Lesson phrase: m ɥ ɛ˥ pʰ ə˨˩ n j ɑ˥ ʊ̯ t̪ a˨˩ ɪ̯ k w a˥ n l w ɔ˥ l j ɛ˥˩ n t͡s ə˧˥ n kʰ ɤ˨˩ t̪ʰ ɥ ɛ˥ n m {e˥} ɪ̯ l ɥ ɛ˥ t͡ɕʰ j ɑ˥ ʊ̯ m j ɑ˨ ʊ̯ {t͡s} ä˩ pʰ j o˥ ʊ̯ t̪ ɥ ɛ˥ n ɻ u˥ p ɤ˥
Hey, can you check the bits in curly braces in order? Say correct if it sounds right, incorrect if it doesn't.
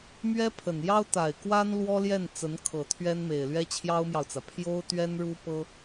incorrect: e˨˩, correct

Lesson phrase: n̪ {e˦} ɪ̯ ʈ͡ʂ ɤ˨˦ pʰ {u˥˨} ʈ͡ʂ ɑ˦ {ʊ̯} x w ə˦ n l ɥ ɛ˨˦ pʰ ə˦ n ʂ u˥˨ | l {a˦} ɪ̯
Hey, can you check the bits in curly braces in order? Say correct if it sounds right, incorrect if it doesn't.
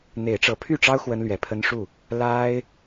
incorrect: e˨˦, incorrect: y˥˨, correct, correct

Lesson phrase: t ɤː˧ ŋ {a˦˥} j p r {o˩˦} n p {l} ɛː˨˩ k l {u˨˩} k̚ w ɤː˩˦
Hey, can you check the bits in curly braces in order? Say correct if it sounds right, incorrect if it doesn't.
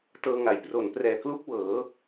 incorrect: a˨˩, correct, incorrect: r, incorrect: u˦˥

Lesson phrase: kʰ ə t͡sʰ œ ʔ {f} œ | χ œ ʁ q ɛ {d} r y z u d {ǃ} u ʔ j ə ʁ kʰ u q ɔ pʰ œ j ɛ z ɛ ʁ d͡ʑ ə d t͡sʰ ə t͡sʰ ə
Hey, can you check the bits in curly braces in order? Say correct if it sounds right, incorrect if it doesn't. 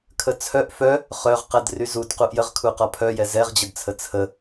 correct, correct, incorrect: q

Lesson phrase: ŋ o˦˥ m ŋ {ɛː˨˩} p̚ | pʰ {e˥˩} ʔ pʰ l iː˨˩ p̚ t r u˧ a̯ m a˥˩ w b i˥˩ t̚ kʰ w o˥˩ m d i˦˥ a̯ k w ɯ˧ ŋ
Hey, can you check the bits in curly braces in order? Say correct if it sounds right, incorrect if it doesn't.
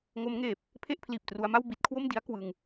incorrect: eː˨˩, correct

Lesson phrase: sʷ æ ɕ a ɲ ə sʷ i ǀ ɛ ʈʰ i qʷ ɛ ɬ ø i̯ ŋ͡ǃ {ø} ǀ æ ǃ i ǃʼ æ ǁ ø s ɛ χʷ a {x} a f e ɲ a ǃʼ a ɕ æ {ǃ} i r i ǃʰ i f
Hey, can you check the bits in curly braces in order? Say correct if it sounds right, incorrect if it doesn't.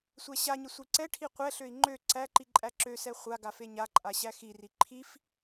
correct, incorrect: ɡ, incorrect: x

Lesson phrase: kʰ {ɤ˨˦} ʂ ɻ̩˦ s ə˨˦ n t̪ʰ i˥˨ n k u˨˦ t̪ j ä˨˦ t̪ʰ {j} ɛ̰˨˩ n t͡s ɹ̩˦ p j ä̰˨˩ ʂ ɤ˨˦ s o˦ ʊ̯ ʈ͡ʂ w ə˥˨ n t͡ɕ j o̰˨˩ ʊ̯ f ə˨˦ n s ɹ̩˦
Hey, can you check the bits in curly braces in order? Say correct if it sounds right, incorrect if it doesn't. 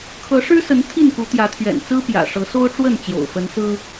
correct, incorrect: ɥ

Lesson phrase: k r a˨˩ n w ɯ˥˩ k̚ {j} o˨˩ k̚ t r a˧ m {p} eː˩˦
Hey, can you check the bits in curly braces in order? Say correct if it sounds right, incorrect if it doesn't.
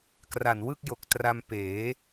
correct, correct

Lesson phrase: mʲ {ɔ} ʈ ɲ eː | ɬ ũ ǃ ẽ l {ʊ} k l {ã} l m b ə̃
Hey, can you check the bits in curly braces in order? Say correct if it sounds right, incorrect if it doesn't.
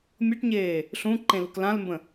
incorrect: ɤ, correct, correct

